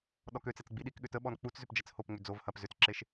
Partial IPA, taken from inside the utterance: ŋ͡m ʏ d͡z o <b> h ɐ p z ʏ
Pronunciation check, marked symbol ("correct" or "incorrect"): incorrect